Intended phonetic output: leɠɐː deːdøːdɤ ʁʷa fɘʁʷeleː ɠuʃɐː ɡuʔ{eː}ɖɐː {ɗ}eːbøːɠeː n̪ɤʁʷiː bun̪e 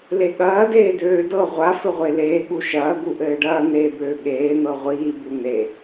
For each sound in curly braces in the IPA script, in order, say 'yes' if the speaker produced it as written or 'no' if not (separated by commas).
no, no